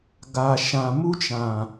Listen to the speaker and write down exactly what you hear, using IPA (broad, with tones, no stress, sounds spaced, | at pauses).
ɡ a˨ ʃ ã˨ m u˦ t͡ʃ ã˨